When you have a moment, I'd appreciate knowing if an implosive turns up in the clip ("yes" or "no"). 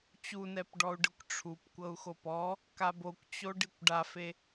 no